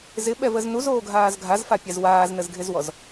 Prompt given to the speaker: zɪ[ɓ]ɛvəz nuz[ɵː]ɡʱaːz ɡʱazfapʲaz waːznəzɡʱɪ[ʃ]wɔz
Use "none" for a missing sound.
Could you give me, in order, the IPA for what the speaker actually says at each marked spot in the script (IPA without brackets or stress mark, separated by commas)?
ɓ, oː, z